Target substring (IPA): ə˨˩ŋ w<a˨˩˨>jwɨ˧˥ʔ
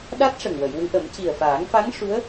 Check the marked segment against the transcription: incorrect: ə˨˩˨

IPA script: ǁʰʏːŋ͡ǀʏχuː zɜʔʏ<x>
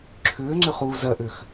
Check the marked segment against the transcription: correct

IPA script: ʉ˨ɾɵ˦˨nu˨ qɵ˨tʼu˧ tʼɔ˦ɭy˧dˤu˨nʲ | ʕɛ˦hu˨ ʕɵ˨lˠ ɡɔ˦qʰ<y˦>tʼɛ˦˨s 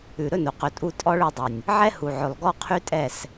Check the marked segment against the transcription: correct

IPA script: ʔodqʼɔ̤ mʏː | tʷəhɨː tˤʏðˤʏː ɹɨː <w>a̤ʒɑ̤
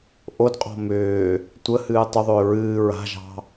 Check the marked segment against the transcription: incorrect: ɹ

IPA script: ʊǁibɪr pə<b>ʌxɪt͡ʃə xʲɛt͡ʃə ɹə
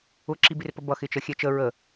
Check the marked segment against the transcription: correct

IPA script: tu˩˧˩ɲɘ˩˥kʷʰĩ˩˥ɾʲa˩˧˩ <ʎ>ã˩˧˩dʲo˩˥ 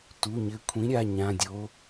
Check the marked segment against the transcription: incorrect: ɲ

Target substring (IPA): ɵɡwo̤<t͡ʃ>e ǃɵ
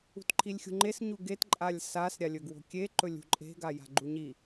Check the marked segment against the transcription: incorrect: kʲ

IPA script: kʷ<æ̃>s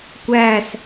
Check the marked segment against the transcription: incorrect: æ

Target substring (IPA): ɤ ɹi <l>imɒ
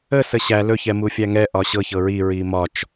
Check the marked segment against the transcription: incorrect: ɹ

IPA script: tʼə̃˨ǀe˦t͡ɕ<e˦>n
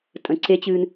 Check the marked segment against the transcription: incorrect: ɨ˦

